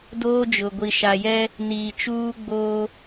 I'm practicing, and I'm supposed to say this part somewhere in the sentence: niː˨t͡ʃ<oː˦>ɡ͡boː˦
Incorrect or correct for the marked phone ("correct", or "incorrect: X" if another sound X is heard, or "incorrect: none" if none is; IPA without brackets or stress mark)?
incorrect: uː˦